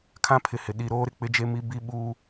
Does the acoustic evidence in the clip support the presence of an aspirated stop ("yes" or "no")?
yes